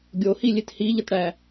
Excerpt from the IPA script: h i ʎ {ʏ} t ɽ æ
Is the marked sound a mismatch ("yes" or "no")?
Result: yes